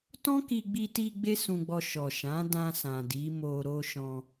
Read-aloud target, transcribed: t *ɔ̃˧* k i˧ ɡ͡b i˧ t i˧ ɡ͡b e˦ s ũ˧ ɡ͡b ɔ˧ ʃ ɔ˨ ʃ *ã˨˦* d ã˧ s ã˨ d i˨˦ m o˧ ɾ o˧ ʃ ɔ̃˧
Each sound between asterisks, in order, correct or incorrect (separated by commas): incorrect, correct